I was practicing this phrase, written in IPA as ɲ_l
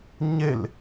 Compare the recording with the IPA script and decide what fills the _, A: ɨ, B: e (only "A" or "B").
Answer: B